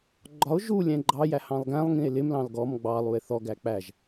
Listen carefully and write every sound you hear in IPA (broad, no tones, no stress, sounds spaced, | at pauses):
ɡ͡ǃ ɒ o̯ ʒ u lʲ ɛ̃ ɡ͡ǃ ɑ j æ h ɑ̃ lˠ ɡ æ̃ lˠ ŋ ĩ e̯ l ɪ m l ɑ̃ l ɡ ɔ m ɡ͡b ɑ lˠ u e̯ θ ɔ ɡ æ k͡p æ ʒ